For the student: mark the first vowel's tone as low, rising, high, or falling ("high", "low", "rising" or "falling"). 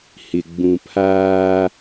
low